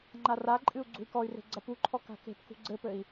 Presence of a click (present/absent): present